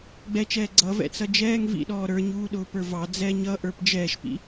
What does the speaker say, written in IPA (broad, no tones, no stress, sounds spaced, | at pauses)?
ɡ͡b ɛ t͡ʃ ɛː ɡ͡ǀ ʌ v ɛ̰ t͡s ʌ d͡ʒ ɛː ŋ v ḭ ɗ ɔː ɾ ə˞ ɲ uː ɗ ʊː p ə˞ v ɑ d͡z ɛ ɲ ʌ ʔ ə˞ p d͡ʒ ɛː ʃ p ḭ